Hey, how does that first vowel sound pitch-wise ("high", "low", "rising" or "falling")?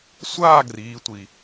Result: falling